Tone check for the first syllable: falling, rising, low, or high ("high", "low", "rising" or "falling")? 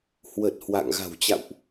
low